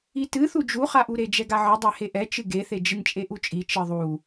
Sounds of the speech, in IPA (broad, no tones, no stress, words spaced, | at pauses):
itɨ θud͡ʒuχaʔu ɾed͡ʒɛɡaʕɨ dˤɛheʔɛt͡ʃɨ ɡeθe d͡ʒɨnt͡ʃʼeʔut͡ʃʼi t͡ʃɨðˤu